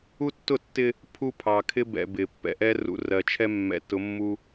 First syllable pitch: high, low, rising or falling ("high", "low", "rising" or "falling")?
high